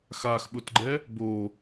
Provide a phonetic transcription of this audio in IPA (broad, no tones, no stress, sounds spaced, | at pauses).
x a x ɓ ʊ t ɡ͡ǃ ɛ | b o